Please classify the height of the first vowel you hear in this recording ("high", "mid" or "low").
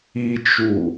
high